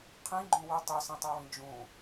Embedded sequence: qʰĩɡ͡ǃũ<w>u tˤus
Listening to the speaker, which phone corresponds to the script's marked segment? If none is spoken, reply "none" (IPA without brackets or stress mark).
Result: w